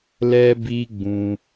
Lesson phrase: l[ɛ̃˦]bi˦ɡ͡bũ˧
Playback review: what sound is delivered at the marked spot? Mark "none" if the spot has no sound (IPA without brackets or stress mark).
ɛ˦